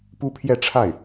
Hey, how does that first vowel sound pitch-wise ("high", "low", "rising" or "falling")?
high